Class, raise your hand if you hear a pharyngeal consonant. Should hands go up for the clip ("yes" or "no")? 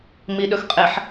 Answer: yes